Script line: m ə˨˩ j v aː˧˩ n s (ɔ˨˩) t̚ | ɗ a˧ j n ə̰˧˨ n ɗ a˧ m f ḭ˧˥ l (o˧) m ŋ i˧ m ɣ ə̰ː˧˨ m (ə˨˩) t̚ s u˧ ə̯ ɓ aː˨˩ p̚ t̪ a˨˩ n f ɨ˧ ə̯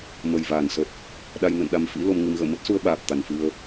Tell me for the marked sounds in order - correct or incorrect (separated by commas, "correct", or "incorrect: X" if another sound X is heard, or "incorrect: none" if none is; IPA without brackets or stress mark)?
incorrect: ə˨˩, correct, incorrect: ə˦˥